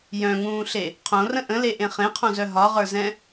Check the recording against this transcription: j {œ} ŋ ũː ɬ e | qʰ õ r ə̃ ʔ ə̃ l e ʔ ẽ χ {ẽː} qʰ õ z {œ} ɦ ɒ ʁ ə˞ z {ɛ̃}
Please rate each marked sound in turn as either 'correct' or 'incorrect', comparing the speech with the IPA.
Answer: incorrect: œ̃, incorrect: ẽ, correct, correct

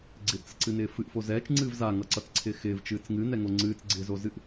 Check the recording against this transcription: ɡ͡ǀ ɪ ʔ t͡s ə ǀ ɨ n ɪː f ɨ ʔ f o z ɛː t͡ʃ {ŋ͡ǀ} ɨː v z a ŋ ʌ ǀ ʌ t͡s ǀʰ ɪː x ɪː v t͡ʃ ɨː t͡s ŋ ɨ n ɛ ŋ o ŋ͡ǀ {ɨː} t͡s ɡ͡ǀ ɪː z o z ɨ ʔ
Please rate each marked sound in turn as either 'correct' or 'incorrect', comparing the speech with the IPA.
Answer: correct, correct

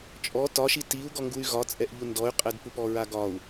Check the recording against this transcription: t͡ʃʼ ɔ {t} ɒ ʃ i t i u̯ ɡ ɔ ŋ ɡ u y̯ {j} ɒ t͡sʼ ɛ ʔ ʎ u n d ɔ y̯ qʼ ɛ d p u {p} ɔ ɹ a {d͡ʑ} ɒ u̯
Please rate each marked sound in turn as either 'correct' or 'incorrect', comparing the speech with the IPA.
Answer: correct, incorrect: ɣ, correct, incorrect: ɡ

